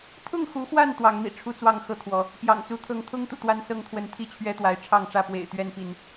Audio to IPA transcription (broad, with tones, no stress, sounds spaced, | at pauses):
t̪ʰ ʊ˥˨ ŋ x u˨˦ x w a˥˨ n t̪ w ɑ˨˦ ŋ n̪ ḭ˨˩ ʈ͡ʂʰ u˦ t͡s w ɑ˥˨ ŋ x ɤ˥˨ t̪ʰ w ɔ˨˦ | p j ɑ̰˨˩ ŋ t͡s u˨˦ t̪ʰ ɤ˥˨ ŋ t̪ʰ ʊ˦ ŋ t̪ ṵ˨˩ t̪ w a˦ n s ɤ˥˨ ŋ t̪ʰ w ə˨˦ n t̪ʰ i˥˨ t͡ɕʰ ɥ ɛ˦ t̪ w a˨˦ ɪ̯ ʈ͡ʂʰ ɑ˥˨ ŋ ʈ͡ʂ ä˥˨ p w ḛ˨˩ ɪ̯ t̪ ɥ ɛ˥˨ n p i˥˨ n